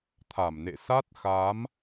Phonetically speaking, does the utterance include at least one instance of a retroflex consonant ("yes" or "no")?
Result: no